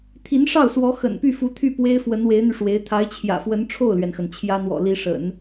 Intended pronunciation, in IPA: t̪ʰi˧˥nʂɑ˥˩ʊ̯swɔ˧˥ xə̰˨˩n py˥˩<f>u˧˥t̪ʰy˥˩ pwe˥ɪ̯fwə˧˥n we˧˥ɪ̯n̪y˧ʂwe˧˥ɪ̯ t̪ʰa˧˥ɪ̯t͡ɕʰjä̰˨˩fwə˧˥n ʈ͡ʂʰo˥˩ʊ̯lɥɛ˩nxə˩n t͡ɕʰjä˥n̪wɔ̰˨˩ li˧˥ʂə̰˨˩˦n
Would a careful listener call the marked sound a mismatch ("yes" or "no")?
no